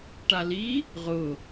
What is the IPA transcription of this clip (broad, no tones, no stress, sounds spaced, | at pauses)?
ʈ a l i | ʁ ʊ